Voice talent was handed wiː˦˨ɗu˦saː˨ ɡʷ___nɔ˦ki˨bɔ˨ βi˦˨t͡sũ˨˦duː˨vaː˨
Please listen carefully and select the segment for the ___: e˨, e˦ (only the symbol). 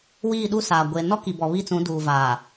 e˨